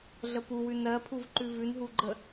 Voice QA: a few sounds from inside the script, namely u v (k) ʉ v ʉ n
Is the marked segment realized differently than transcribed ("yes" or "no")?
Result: yes